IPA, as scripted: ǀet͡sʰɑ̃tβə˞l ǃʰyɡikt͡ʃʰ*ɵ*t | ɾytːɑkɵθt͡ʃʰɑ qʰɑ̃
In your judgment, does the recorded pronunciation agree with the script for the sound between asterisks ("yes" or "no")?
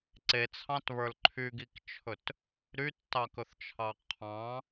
yes